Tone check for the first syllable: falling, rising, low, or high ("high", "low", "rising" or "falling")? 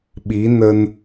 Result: rising